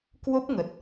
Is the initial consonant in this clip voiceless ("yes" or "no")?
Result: yes